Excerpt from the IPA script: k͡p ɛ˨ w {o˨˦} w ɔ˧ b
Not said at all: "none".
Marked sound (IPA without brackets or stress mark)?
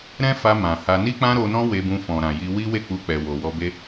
o˨